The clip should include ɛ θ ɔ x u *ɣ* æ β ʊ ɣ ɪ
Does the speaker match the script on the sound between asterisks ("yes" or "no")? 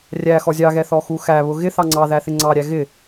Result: no